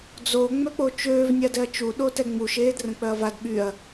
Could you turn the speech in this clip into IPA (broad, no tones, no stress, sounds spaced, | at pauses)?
d͡z o ŋ͡m œ k͡p o t͡ʃ øː v nʲ a d ɛ ɐ̯ t͡ʃ u ɗ o t ɛ ŋ͡m u ʃ eː d r ə̃ k͡p œ ɐ̯ v a d ɓ y ɐ̯